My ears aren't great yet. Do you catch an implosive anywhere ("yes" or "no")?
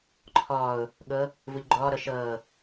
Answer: yes